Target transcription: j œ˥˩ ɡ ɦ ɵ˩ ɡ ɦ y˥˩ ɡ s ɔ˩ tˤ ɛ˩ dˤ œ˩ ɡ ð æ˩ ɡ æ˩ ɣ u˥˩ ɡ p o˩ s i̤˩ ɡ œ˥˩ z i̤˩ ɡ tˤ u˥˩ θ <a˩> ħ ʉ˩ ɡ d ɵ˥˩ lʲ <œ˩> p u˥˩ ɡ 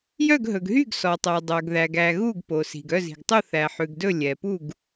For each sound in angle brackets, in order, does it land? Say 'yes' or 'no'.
no, no

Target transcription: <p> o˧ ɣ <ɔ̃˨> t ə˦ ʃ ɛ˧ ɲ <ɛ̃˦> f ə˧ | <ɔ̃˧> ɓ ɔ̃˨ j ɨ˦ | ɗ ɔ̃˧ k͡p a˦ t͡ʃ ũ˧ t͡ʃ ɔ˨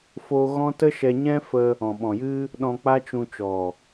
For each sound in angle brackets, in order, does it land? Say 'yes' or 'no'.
no, no, yes, no

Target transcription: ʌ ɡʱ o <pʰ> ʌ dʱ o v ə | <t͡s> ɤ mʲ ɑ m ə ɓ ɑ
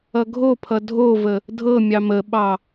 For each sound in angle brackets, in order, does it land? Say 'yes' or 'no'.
yes, no

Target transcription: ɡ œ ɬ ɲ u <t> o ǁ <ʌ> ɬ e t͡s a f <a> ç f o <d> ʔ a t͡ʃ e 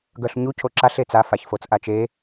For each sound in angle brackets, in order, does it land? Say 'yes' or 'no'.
no, no, yes, no

